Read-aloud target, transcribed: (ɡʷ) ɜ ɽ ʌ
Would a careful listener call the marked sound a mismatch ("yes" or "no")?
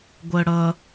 no